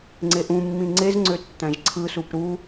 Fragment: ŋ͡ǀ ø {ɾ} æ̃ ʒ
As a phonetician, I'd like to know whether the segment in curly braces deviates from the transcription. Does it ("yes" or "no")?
yes